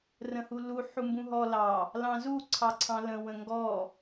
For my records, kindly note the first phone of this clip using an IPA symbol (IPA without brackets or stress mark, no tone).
r